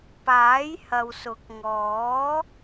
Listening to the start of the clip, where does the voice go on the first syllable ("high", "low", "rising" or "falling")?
rising